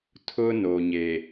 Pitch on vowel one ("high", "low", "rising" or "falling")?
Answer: high